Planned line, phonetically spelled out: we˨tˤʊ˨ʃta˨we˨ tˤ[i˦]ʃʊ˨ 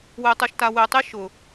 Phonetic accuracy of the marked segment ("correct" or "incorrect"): correct